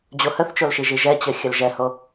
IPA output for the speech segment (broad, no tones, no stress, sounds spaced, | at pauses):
d͡ʑ o h ə θ t͡ʃ o l ʃ i ʒ i ʒ ɛ t͡ɕ ə xʲ ə l ʒ ɛ h o